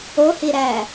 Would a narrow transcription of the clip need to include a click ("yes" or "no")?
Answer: no